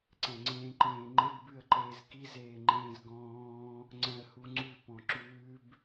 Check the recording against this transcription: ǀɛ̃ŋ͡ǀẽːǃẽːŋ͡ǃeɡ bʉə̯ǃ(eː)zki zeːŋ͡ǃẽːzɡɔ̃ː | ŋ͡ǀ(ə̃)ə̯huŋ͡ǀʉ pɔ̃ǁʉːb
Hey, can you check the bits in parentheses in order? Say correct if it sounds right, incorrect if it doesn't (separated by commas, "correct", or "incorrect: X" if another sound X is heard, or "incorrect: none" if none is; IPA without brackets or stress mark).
correct, incorrect: ɛ̃